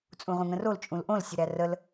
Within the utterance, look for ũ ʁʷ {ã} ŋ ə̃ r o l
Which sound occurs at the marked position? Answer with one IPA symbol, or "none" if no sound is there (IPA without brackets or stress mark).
ə̃